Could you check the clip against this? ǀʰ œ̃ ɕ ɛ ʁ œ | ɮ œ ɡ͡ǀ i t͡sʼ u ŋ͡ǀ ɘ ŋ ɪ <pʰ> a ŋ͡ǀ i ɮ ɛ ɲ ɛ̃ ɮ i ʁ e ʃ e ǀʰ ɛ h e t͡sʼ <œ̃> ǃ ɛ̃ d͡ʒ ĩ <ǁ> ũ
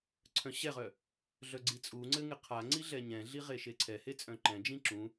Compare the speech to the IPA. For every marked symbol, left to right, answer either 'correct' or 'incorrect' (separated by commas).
incorrect, correct, correct